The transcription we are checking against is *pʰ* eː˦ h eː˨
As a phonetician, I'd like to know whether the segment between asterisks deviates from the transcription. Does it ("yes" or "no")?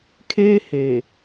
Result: yes